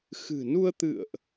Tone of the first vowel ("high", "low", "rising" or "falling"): low